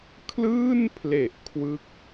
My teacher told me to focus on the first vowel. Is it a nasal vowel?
no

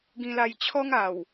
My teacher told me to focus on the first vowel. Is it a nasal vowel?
yes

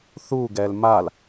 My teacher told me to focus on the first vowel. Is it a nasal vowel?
no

